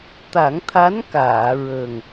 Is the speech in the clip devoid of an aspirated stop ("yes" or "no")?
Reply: no